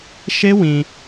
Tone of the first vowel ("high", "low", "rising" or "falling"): high